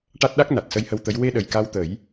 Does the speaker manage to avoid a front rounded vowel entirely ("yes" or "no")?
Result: yes